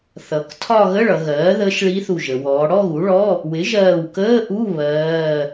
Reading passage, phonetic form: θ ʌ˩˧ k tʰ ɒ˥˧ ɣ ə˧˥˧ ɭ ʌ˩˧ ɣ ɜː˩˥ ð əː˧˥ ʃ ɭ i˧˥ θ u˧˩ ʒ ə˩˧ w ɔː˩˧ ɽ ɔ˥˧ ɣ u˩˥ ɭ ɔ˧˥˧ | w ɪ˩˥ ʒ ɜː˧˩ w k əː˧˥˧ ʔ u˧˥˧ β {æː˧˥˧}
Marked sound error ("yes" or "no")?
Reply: yes